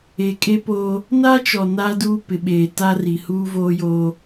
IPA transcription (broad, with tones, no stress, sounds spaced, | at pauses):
e˨ kʼ e˦ p oː˦ | n a˦ t͡ʃ ɔ˨ n a˦ d uː˦ p ɪ˨ ɓ eː˨ t a˦ r i˨ h uː˦ v oː˦ j oː˦